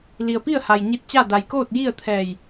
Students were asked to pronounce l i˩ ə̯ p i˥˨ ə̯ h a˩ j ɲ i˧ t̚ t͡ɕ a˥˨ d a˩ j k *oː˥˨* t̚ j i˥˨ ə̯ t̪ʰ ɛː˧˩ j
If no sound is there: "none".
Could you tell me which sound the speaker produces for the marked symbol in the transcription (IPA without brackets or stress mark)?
oː˥˨